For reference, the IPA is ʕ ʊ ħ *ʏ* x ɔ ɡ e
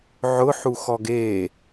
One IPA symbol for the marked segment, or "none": u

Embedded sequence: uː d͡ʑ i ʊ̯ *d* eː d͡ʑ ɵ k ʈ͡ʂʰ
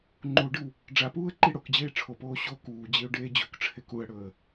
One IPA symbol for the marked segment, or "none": ɖ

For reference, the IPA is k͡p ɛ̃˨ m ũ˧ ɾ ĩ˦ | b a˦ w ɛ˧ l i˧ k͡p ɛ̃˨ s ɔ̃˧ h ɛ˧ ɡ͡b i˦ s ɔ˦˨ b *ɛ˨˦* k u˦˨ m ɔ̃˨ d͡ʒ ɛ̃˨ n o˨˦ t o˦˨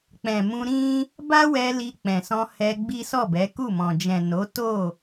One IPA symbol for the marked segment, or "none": ɛ˨˦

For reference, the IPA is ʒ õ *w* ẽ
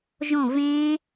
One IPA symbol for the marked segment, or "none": v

